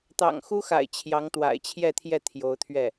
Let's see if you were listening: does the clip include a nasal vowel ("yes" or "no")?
no